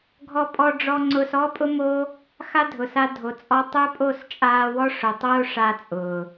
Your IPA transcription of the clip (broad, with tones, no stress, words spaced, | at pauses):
ɡʱɔ˧ pʼɔ˧ɖ͡ʐɔ˧ ŋ͡ǀʊː˧sɔ˦pʼʊ˦mo˦ | xa˦dʱʊ˨sa˧ dʱo˨t͡sʼɔ˧ tˤʊː˦pʼo˦˨st͡ʃʼaː˧wɔ˦ ʂʊ˨tˤoː˦ ʂa˧ t͡sʼʊː˨